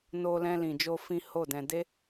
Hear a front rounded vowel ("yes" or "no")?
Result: no